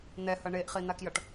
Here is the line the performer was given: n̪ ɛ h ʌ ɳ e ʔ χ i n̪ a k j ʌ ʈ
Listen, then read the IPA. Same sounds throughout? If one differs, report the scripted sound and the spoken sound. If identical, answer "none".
none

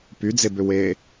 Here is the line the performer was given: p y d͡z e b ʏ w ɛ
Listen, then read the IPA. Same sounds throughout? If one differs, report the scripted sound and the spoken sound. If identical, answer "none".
ɛ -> e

